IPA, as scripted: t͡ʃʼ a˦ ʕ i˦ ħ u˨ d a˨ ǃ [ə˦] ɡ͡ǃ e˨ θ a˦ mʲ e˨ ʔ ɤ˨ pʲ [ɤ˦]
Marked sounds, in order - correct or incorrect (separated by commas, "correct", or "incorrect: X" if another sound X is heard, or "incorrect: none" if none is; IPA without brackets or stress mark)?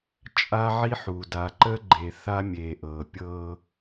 correct, correct